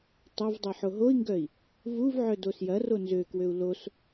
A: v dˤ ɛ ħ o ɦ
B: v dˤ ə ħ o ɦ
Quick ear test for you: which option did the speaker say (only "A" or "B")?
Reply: A